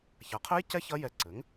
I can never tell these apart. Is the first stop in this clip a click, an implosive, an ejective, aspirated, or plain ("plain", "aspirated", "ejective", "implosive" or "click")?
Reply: aspirated